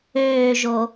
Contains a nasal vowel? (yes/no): no